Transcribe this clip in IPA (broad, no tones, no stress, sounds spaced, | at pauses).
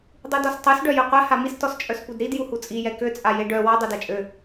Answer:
dˤ u d ɔ s tˤ u s ɖ œ j ø qʷ ɛ h a m i s t ɔ s t͡ʃʼ œ s p u d ɾ i d j u h u t͡sʼ i j ɛ k ø t͡sʼ a j e ɖ œ w ɔ dˤ e d a t͡ʃʼ ø